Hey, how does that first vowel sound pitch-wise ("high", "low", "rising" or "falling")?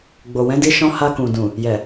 low